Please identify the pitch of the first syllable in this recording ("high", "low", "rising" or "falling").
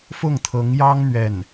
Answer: falling